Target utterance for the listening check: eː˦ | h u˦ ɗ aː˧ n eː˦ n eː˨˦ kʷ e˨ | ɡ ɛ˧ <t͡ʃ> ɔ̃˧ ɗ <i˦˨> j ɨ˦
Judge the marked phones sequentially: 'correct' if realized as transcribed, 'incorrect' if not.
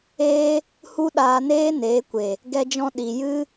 incorrect: d͡ʒ, incorrect: i˨

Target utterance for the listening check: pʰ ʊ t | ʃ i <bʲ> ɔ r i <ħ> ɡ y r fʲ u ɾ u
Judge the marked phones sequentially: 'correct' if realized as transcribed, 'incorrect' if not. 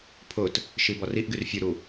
incorrect: b, incorrect: ʔ

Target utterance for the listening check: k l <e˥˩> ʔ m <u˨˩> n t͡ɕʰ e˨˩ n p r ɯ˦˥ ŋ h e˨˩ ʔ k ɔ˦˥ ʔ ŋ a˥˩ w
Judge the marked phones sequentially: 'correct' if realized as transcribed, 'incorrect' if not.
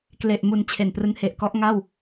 incorrect: e˨˩, correct

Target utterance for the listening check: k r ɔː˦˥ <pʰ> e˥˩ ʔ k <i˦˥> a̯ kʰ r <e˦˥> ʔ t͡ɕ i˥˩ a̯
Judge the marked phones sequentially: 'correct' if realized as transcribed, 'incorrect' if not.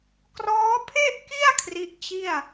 correct, incorrect: i˥˩, incorrect: i˦˥

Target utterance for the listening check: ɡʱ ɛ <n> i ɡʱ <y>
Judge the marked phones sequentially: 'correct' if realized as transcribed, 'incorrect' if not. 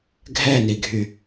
correct, correct

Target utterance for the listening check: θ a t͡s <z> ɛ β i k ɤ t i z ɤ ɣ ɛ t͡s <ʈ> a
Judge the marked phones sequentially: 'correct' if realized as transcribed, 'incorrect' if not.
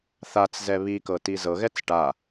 correct, correct

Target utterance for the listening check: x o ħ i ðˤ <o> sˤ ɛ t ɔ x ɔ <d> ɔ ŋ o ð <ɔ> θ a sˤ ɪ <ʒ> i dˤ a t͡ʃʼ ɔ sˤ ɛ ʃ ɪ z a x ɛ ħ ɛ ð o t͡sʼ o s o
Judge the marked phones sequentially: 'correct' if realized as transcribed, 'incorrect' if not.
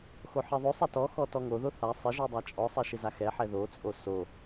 correct, incorrect: t, incorrect: o, correct

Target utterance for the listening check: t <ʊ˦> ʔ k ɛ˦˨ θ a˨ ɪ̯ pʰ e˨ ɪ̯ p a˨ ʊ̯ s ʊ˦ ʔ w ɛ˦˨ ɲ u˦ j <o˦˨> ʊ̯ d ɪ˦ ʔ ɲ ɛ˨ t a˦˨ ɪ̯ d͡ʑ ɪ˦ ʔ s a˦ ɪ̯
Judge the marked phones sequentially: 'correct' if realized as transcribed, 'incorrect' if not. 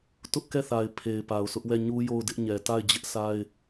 correct, correct

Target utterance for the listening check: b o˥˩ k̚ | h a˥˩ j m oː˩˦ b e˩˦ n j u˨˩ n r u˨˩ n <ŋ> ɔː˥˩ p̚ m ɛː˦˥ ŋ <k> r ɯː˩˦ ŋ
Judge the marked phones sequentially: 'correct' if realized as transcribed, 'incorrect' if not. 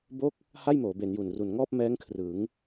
correct, incorrect: kʰ

